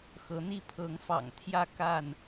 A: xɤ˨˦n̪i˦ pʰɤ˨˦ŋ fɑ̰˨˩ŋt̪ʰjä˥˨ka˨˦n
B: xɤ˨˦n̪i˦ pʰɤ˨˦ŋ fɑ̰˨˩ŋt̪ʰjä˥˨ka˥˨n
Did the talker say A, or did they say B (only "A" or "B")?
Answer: B